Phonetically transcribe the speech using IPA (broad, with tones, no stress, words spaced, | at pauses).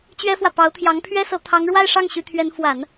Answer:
t͡ɕɥɛ˥fwä˨ pɑ˧˥ʊ̯t̪ʰjɑ˧˥ŋpʰɥɛ˥sɤ˧˥ t̪ʰɑ˧˥ŋɻwa˥˧ɪ̯ʂɑ˥˩ŋ ɕy˧˥t̪ʰɥɛ˧˥n fwa˨˩˦n